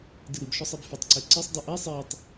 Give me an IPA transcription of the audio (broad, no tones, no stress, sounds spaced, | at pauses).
d ɨ ɾ ɨ b ʃ ɔ sˤ ɛ b f ʏ tˤ ǀ ɛ ǀ ɨ sˤ dˤ ɨ ʔ ɛ sˤ ɛ tˤ